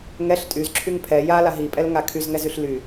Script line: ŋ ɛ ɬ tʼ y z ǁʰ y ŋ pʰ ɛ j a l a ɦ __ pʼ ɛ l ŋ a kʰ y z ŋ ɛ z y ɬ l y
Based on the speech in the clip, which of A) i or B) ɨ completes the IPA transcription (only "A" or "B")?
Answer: A